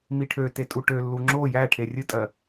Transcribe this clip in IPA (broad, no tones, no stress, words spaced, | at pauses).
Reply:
miʈʰøte tʼuʈølːu ŋ͡ǁo jæʈʰe rʲɨtʼɜ